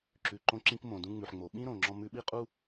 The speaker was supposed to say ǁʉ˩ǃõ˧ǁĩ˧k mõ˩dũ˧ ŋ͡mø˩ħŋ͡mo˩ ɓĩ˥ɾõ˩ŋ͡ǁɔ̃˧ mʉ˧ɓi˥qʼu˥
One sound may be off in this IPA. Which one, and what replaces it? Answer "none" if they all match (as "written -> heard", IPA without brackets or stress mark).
ø˩ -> ʉ˩